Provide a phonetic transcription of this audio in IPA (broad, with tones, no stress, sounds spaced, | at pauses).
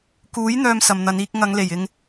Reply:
k uː˨˥ j n̪ œː˧ m s ɐ˨ m n̪ ɐ˨˧ n iː˧ k̚ ŋ ɐ˨˧ ŋ l e˨˩ j ɪ˧ ŋ